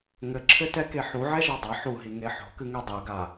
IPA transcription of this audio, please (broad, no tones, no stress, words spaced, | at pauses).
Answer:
ŋɘǁʰɘtɛke ħuʕɛʒɔ dˤɐ ħuɦiŋe ħo̤kɨŋe dˤɛɡa